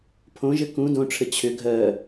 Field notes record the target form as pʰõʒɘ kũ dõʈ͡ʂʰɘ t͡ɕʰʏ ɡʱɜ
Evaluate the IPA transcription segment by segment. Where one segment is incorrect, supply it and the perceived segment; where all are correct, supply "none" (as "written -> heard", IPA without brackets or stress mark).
none